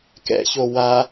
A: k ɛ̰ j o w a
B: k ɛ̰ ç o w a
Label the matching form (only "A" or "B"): B